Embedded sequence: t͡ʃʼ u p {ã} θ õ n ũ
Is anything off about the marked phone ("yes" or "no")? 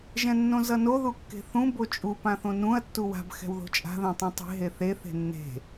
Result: no